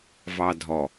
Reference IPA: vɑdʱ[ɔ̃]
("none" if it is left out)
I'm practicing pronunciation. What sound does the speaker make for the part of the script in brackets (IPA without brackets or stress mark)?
ɔ